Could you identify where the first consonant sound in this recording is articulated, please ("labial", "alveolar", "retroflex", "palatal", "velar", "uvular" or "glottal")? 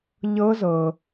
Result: palatal